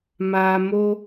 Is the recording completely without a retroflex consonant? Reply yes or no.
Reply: yes